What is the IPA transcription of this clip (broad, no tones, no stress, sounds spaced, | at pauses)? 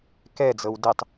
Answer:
k ɛ d͡z ɤ w d ɪ tˤ